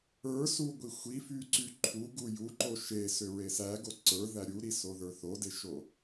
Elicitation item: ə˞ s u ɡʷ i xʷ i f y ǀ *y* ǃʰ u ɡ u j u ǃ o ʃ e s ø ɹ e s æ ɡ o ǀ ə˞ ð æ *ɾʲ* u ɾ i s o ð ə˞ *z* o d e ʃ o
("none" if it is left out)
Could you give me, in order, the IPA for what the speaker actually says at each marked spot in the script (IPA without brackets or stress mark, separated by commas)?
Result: y, ɾʲ, θ